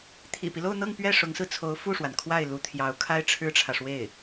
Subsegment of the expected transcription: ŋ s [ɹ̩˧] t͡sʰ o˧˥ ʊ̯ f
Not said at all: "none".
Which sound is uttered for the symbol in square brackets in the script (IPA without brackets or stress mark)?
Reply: ɹ̩˧